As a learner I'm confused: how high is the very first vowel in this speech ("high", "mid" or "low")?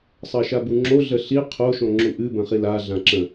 low